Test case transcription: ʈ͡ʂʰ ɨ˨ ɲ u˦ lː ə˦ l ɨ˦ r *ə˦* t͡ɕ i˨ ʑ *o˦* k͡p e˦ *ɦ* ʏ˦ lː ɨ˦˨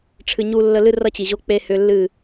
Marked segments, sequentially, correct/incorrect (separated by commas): incorrect, correct, incorrect